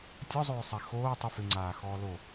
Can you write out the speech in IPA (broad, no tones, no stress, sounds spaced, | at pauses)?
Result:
tʲ ɔ zˤ ʏː sˤ ɛ x oː tˤ ʏ f ʏ ŋ͡ǀ aː x ɔː l o